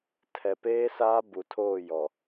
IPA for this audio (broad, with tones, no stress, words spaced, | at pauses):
tʰɛ˨peː˦saː˦ bu˨tʰoː˦˨jɔ˨